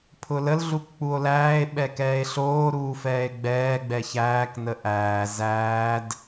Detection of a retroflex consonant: absent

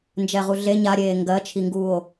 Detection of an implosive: absent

